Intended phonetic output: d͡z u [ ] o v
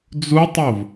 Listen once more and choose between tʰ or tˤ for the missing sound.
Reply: tˤ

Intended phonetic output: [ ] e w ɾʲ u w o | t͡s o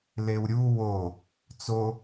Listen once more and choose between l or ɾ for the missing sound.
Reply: l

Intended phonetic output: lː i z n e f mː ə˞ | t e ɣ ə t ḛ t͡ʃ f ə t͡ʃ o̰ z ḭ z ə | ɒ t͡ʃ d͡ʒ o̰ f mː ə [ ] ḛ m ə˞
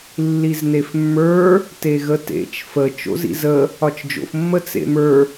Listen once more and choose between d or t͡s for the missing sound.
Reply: t͡s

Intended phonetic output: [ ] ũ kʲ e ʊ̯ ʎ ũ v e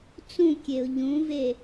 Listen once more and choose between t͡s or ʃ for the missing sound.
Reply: t͡s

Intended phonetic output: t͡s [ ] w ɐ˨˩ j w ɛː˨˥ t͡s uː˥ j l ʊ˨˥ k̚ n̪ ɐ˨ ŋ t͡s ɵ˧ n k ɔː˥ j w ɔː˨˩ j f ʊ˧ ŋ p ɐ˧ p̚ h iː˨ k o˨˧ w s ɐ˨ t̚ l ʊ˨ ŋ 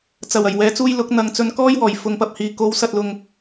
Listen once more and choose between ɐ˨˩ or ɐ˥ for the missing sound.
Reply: ɐ˨˩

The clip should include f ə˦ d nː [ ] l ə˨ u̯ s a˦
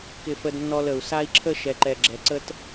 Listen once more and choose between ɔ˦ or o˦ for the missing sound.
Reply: ɔ˦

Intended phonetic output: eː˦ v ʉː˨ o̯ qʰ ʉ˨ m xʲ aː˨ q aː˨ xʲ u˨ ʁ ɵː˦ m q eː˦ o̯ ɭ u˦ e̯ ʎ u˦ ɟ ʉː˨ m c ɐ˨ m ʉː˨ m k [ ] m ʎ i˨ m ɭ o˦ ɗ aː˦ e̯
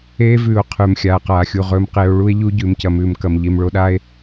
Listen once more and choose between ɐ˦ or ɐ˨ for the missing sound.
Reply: ɐ˨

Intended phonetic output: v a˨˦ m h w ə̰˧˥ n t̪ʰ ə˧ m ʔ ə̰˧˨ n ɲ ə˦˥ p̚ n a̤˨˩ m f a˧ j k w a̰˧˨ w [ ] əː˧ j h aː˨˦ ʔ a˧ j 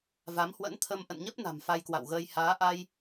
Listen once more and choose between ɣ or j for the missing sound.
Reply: ɣ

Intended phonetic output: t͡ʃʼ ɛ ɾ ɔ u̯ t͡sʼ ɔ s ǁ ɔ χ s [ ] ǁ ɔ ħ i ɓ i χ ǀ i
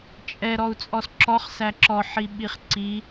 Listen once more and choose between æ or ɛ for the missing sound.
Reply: æ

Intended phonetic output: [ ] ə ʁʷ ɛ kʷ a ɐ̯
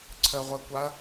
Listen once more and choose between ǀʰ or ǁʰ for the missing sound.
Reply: ǀʰ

